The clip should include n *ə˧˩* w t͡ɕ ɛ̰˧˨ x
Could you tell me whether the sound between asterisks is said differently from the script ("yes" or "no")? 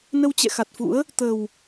yes